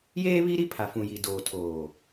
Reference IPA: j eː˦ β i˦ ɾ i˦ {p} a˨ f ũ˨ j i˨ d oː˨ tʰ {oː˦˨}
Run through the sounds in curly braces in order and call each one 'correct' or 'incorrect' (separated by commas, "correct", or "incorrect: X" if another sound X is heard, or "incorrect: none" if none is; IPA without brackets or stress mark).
incorrect: pʰ, incorrect: oː˨